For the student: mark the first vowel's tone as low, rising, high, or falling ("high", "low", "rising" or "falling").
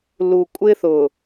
low